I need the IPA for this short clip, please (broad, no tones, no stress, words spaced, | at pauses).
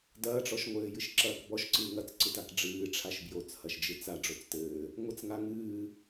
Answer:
dɐːʈ͡ʂɔʃŋʷɘː jɨʃǁɐːkbɔʃ ǀɨːŋɐt͡sǀɨtak ɖ͡ʐɨːʈ͡ʂʰaʃ bjot͡shɐʃ d͡ʒɨt͡sa ɖ͡ʐot͡stɘː | ŋʷɘt͡sŋa ŋɨː